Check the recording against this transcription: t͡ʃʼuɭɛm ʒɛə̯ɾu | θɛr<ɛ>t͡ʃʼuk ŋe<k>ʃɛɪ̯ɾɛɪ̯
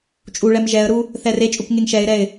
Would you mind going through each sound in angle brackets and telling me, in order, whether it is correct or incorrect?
incorrect, incorrect

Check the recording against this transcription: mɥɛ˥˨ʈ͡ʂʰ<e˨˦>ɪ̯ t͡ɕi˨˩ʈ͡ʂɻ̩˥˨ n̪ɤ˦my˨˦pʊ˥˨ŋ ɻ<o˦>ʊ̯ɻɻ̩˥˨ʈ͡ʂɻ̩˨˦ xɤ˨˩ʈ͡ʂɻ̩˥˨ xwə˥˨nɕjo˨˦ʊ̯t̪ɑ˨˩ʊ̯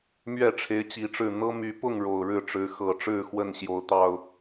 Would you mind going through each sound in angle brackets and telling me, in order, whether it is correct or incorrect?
correct, incorrect

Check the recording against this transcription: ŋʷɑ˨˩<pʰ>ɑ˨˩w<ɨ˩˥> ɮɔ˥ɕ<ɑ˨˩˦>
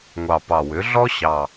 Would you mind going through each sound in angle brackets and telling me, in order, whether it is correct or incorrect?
incorrect, incorrect, incorrect

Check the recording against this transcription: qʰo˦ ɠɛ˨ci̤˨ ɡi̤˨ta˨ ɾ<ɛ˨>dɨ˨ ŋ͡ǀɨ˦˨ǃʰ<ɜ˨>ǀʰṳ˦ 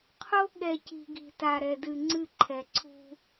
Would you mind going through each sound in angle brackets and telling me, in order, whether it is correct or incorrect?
correct, incorrect

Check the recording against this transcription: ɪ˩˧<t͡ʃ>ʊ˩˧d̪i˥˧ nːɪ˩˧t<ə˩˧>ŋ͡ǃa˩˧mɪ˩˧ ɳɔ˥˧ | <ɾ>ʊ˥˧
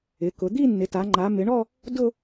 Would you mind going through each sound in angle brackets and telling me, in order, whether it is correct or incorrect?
incorrect, incorrect, incorrect

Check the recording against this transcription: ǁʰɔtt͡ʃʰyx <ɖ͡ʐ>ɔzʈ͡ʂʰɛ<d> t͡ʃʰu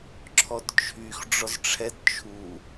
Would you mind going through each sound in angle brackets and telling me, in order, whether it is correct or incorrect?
correct, correct

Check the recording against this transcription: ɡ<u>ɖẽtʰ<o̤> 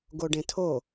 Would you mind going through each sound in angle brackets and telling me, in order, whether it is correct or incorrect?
incorrect, incorrect

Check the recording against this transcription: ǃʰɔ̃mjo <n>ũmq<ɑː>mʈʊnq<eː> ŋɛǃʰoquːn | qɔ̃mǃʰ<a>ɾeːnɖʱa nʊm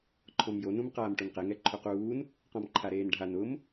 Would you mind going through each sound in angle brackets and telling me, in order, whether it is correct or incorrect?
correct, incorrect, incorrect, correct

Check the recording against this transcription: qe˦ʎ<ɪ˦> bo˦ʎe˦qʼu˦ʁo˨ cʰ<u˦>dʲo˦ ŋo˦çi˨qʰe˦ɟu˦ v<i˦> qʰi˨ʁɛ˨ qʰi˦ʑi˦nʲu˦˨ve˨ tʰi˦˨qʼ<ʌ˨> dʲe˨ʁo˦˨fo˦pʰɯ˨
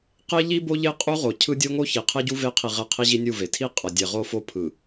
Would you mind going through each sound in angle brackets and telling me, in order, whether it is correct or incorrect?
incorrect, incorrect, incorrect, correct

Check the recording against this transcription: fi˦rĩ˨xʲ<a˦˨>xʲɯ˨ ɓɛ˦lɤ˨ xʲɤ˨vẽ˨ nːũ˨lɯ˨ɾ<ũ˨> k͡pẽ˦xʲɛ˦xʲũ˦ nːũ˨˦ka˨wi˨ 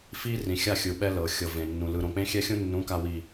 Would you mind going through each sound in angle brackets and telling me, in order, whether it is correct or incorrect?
correct, incorrect

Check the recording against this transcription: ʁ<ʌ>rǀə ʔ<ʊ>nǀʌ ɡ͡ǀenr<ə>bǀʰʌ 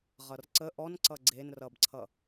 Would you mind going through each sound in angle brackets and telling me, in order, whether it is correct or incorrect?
correct, incorrect, incorrect

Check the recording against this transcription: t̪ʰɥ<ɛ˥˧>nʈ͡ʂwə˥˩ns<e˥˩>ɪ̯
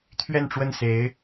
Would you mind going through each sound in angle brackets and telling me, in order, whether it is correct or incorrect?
correct, incorrect

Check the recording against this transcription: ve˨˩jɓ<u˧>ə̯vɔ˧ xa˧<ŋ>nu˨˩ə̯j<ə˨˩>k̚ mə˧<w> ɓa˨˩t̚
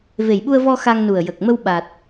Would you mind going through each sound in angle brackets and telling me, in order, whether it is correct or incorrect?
correct, correct, correct, correct

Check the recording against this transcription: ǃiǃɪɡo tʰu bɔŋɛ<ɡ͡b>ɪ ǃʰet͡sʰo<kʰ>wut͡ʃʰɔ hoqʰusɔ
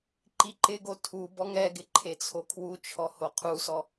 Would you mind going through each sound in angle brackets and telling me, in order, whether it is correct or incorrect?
incorrect, correct

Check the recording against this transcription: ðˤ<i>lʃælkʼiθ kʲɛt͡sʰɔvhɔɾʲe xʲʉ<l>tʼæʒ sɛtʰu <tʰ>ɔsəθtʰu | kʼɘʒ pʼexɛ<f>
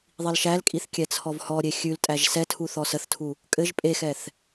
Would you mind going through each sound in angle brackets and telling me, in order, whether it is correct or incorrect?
correct, correct, incorrect, incorrect

